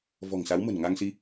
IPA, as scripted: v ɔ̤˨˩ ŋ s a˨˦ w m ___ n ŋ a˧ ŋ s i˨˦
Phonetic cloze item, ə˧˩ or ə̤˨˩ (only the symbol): ə̤˨˩